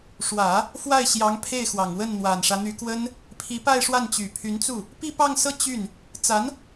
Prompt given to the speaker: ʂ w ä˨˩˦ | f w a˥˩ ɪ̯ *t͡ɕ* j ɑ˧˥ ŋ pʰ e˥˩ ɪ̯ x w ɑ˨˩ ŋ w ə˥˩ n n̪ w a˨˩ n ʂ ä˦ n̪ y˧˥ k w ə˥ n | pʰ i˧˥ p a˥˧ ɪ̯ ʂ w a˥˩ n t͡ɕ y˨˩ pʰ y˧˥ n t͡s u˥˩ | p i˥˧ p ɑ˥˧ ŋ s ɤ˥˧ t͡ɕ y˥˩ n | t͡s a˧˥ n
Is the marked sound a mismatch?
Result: yes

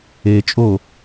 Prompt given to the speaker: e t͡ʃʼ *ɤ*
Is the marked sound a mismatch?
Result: yes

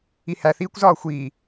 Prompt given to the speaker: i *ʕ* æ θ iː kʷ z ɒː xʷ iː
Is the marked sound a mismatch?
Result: yes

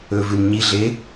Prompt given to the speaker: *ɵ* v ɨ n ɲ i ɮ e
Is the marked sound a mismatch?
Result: no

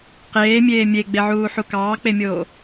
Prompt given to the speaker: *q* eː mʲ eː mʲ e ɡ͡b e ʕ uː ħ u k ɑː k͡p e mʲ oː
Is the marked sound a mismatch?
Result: no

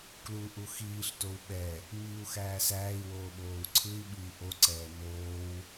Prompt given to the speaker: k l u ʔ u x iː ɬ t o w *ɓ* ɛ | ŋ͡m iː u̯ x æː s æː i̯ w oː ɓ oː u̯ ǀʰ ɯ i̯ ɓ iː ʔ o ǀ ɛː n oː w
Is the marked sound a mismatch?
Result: no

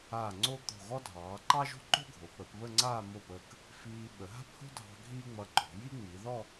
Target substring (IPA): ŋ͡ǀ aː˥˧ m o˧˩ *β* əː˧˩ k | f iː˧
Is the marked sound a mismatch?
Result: yes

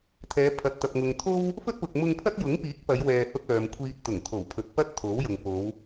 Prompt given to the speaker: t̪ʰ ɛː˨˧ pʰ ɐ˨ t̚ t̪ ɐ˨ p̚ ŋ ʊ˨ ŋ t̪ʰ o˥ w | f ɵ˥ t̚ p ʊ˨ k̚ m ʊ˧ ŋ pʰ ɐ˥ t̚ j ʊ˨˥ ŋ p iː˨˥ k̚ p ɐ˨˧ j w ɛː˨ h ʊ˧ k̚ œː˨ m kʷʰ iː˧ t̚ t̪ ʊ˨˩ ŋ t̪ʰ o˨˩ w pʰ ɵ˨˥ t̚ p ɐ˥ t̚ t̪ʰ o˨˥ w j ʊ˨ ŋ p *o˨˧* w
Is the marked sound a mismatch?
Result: no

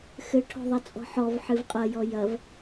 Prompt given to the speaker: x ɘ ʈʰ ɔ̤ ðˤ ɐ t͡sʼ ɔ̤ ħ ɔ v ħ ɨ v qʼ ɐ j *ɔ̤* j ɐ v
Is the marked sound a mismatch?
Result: yes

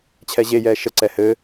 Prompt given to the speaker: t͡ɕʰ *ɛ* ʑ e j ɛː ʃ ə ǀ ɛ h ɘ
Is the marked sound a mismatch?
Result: no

